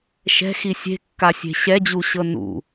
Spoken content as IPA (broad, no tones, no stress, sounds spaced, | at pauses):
ʃ ɛ̤ x i sʲ e̤ kː a sʲ e̤ ɕ ɛ d͡ʑ u ɕ ɤ n ṵ